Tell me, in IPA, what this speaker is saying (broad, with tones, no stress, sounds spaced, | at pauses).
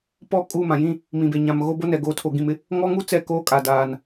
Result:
p ɔ˦˨ kʼ u˦˨ m ã˨ j ĩ˦ | m ĩ˨ b e˨ ɲ ã˨ m ɣ o˦ b o˦ n ɛ˨ ɡ oː˨ tʰ o˨ ɡ ĩ˨ m ɪ˦ | ŋ ɔ˦ ŋ u˦ t͡s ɛ˦˨ k oː˦ kʼ a˨ d aː˨ n